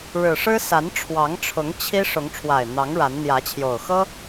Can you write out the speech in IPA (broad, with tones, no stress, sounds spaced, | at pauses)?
ɻ ɻ̩˨˩ ʂ ɻ̩˦ s a˨˦ n ʈ͡ʂʰ w ɑ˨˦ ŋ ʈ͡ʂʰ ʊ˨˦ ŋ t͡ɕʰ i˦ ʂ ʊ˨˦ ŋ ʈ͡ʂʰ w a˨˩ ɪ̯ n̪ ɑ˨˦ ŋ ɻ a˨˦ n n̪ j ä˨˦ t͡ɕʰ j o˨˩ ʊ̯ x ɤ˦